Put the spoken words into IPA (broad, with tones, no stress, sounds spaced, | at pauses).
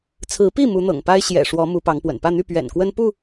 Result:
t͡sʰ ɹ̩˨˦ p i˥˨ m u˨˦ n̪ ɤ̰˨˩ ŋ p a˦ ɪ̯ ɕ j ɛ̰˨˩ ʂ w ɔ˨˦ m u˨˦ p ɑ˨˦ ŋ p w ə̰˨˩ n p ä˥˨ n̪ y˥˨ p ɥ ɛ̰˨˩ n k w ə˦ n p u˥˨